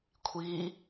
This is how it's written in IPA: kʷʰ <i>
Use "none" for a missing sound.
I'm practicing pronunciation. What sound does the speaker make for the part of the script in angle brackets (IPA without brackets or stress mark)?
i